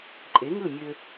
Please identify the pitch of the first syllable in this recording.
rising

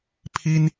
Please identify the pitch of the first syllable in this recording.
high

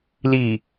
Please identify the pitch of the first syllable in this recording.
low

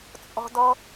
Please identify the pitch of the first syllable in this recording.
high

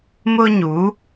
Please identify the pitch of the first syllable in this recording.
high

